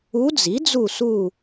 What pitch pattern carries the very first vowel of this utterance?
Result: rising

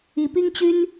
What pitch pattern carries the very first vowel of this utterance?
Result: rising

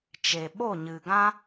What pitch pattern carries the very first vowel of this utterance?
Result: low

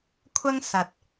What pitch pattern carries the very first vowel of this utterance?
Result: high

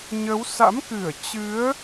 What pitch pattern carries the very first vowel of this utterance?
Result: rising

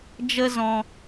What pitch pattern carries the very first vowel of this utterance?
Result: high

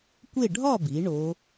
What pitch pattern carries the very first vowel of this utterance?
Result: falling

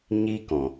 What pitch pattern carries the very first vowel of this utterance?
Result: high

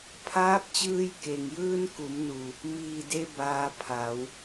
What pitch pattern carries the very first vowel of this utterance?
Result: rising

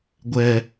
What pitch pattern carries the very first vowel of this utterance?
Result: low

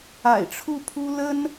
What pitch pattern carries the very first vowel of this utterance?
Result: low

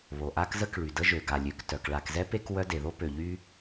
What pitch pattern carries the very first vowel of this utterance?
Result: low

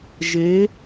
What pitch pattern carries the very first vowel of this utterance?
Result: rising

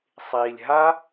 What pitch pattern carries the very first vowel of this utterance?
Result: low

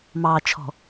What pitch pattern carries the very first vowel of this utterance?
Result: low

